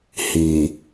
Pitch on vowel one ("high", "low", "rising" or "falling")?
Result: low